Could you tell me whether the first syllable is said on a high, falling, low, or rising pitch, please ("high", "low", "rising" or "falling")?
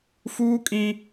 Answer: high